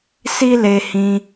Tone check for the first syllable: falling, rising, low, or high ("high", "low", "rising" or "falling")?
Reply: high